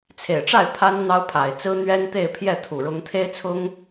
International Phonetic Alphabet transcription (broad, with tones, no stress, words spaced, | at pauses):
t͡sʰe˨˩ɪ̯ʈ͡ʂa˥˩ɪ̯ pʰa˥n n̪ɑ˥ʊ̯pʰa˨˩ɪ̯t͡sɹ̩˥ n̪ɥɛ˥n t̪e˥˧ɪ̯ pʰjɛ˥˩t̪ʰu˨˩ɻʊ˧˥ŋ t̪ʰe˥ɪ̯t͡sʰʊ˥ŋ